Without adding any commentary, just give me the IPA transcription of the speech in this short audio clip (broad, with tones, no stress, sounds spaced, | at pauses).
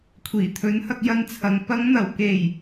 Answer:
kʷʰ iː˨˩ t̪ʰ ɵ˨˥ n h ɐ˧ k̚ j ɐ˧ n t͡sʰ ɐ˨ ŋ p ɐ˨˧ ŋ n̪ ɐ˨˩ w k e˨˩ j